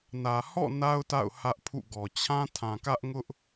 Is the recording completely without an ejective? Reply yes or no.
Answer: yes